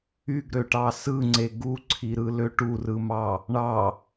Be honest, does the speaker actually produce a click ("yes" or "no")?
yes